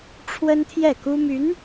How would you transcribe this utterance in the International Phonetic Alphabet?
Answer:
ʈ͡ʂʰ w ə˥ n t̪ʰ j ɛ˥˩ k u˥ m y˧˥ n

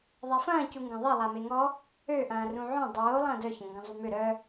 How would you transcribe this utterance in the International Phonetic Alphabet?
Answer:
ðˤ a f ɐ̃ː c u ŋ ɡ ɐ̃ ðˤ e lˠ a m e ŋ ɔ | ø ʔ ɐ̃ː r ũ ʕ õ dˤ oː lˠ ɐ̃ː d œ ç ɐ̃ ŋ ɡ ɐ̃ zˤ y m ʏ ɾ œ

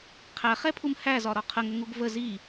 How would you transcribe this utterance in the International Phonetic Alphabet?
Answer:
qʰ æ χ ɛ pʰ u m h æ z ɒ ɾ ɒ qʰ ə ŋ ə ŋ u ɡ v ə z i

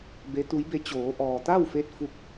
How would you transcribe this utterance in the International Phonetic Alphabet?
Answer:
b e˧˥ t̪ u˧˥ j b e˧˥ t͡ɕ oː˩˧ ʔ ɔː˩ t̪ a˥˨ w f e˧ t̚ f u˧ k̚

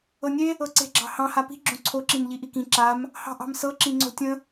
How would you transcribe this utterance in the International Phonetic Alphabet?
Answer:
ɤ nʲ e | ɤ ǀ e̤ ɡ͡ǁ ɑ̤ h ɑ̃ h a p i̤ ɡ͡ǁ õ ǀʰ o ǁ ĩ n ʎ i ʔ i k ĩ ǁ a m | h ɑ̤ ʔ ɑ̤ m s ɤ ǁ ĩ ŋ͡ǀ o̤ tʲ ə̃

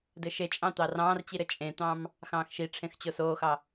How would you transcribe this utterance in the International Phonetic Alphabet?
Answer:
d ɘ ʃ e t͡ʃʼ ɑ̃ t̪ ɑ r ɑ̃ː r t͡ɕ i ɾ ɘ t͡ʃʼ ẽ t̪ ɑ̃ m | x ɑ̃ː x ʃ i ʈ͡ʂʰ ẽ x t͡ɕ o s oː x ɑ

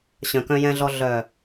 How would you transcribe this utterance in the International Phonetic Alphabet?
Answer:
ɕ œ̃˨ k œ̃˧ j ɛ̃˧ ɮ ɔ˧ ɮ œ˨

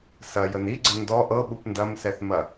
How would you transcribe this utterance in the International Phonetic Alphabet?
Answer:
s ɐ j ə n i ɡ͡ǀ ə n d ɔ ʔ ɤ ɓ u p n d ɐ m s ɛ θ m ɐ

